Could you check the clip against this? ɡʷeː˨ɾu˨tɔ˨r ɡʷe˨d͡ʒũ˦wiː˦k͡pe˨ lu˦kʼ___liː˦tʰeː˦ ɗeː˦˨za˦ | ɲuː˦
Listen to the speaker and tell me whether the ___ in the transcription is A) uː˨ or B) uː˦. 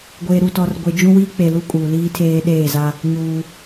A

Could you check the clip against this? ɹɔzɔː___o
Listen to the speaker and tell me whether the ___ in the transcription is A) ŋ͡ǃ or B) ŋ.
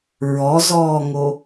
B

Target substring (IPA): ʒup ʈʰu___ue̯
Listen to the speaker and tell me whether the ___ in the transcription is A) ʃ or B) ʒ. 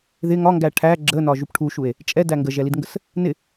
A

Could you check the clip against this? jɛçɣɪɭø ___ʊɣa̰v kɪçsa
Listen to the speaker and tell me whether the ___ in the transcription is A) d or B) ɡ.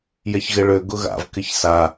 B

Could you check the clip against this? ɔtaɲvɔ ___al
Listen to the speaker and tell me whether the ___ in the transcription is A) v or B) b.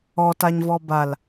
B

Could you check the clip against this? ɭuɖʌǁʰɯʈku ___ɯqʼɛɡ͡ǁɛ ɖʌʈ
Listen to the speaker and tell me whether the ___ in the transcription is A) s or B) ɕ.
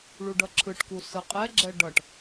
A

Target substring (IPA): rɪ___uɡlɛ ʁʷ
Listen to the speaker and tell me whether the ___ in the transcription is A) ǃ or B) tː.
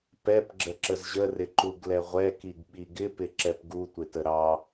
A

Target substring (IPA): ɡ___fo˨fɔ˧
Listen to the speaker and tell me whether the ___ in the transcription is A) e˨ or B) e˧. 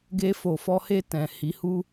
B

